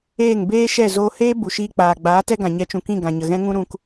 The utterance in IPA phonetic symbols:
eː˦˨ ŋ b eː˦ ʃ ɛ˦˨ z oː˧ h eː˦ b u˨ ʃ iː˧ k͡p aː˨ ɡ͡b aː˨˦ t ɛ˦ ɡ ã˨ ɲ ɛ˨˦ t͡ʃ ũ˨ k ĩ˦˨ ɡ ã˨ ɲ ə˨ ɣ ɛ̃˦ ŋ ũ˦ ɾ ũ˧ k

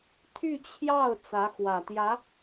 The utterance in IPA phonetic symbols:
t̪ʰ y˥˧ t͡ɕʰ j ɑ˥˩ ʊ̯ t͡s ä˧˥ x w ä˨˩ t̪ j ä˧˥

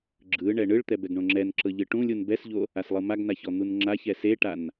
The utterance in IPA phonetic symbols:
ɡ͡ǁ ɯ ɳ ɛ ɳ ɯ ɭ t̪ ɛ b ɛ ɡ ɳ õ ŋ͡ǁ ɛ n ǁ ɤ ʎ ɯ ʈ ũ lʲ u n b ɛ s ʎ o | a s lˠ ɯ m a ɡ n a ç ɔ n̪ u n ŋ͡ǁ a ç ɛ s e ʈ a n

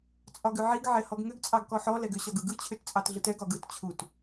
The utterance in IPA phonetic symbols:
t͡sʼ ɒ ɡ ʏ ʕ i ɡ ʕ ɛ h ɔ ɡ ŋ ʏ ɡ t͡sʼ ɑ ɡ k ɔ ħ ɔ l ɛ ɡ ʏ ɕ ɒ ɡ ɯ ɡ ɯ t͡ɕʰ ʏ t t͡sʼ ɑ t ɮ ɯ t ɛ ɡ ɒ ɡ ɯ t t͡ɕʰ u t

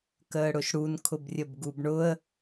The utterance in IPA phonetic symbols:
k əː ɽ ʊ ʃ ɽ u n kʰ ʊ b rʲ ə b ɡ u b ɳ ʊ ə̯

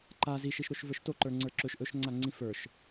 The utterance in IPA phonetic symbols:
ǃ a z i ʃ i ʃ ɾ o ʃ v ə˞ ʃ t o ǃ ə˞ ŋ͡ǀ ə˞ ǁ ɵ ʃ ʔ ɵ ʃ ŋ͡ǀ a ŋ͡ǀ ĩ f ə˞ ʃ

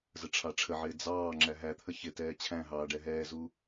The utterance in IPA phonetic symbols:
z ə ʈ͡ʂʰ ɑ ʈ͡ʂʰ ə ʕ ɪː d͡z ɑː ŋ͡ǁ æ ɦ æ t̪ʰ ə ç ɪ t ɛː t͡ɕʰ æ̃ ɦ ɑː ɖ ɛ ɦ ɛː z u

